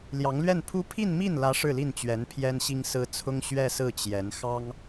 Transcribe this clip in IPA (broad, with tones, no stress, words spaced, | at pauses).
ljɑ˧˥ŋlɥɛ˥˩npʰu˥ pʰi˥˧nmi˥˩nlä˧˥ ʂɻ̩˥˧li˥˩nt͡ɕɥɛ˧˥n pʰjɛ˥nɕi˥ŋsɹ̩˥ t͡sʰʊ˥ŋɕɥɛ˥˧sɹ̩˥˩ t͡ɕjɛ˧˥n xɑ˥ŋ